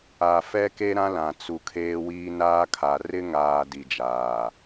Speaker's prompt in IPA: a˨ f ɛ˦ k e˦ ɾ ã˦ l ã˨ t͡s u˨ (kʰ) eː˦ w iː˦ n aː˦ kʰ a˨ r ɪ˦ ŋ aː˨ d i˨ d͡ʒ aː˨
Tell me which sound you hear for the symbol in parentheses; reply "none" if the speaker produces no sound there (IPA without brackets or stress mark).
kʰ